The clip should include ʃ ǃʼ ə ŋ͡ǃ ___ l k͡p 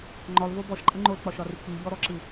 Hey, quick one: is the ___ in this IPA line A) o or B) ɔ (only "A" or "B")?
A